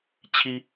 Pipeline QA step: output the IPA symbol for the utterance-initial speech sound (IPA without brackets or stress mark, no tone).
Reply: t͡ɕʰ